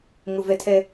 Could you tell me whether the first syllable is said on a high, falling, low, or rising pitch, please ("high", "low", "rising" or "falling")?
low